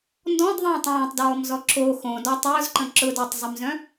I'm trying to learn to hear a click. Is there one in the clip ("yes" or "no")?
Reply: yes